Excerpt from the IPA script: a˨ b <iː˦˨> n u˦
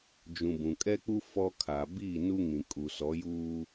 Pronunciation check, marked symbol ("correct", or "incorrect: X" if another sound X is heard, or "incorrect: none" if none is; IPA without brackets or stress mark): correct